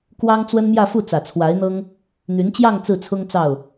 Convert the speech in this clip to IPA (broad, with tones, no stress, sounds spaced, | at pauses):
k w ɑ˥ ŋ t͡s w ə˥ n m j ä˥˧ f u˥˩ t͡s ä˨˩ t͡sʰ w a˧˥ ɪ̯ n̪ ɤ˥ ŋ | n̪ y˧˥ n t͡ɕ j ɑ˥˧ ŋ t͡s ɹ̩˥˩ t͡sʰ ʊ˥ ŋ t͡s ɑ˥˩ ʊ̯